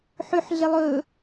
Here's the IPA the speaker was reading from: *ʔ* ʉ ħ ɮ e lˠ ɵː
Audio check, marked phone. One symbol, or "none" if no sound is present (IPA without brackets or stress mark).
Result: ħ